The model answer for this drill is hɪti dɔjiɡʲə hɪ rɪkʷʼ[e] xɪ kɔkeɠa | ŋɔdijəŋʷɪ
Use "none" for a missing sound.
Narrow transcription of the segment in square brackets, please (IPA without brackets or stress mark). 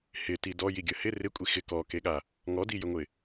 i